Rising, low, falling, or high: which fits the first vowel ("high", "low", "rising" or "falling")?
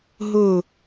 falling